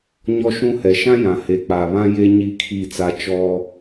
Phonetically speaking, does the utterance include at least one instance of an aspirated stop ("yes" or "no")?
yes